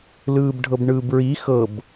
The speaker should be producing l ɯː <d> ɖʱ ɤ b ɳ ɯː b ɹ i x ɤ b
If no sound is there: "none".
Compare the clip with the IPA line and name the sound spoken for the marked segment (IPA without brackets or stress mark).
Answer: b